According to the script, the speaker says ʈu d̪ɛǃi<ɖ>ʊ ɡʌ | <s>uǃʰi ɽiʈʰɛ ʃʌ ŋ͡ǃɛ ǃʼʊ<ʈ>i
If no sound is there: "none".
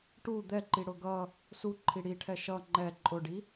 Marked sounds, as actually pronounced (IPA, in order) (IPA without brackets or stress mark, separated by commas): ɽ, s, ɖ